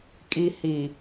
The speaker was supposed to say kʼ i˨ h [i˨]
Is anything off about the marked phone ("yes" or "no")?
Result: no